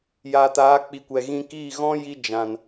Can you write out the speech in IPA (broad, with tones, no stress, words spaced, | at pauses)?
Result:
jaː˨taː˨˦k͡pi˨kʷɛ˨ ɣĩ˧kiː˦˨ ɣɔ̃˦ ji˧d͡ʒã˨n